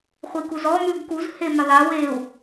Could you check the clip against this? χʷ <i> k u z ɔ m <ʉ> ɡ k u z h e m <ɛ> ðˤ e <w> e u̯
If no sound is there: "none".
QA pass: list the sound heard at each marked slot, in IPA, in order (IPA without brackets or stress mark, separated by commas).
i, ʉ, ɘ, w